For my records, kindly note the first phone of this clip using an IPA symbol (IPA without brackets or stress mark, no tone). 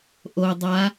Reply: ʔ